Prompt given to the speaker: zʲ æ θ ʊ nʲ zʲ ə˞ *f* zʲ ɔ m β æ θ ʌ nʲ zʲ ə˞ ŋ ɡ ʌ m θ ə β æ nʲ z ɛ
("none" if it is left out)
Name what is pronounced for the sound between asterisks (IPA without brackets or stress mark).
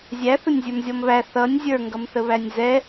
m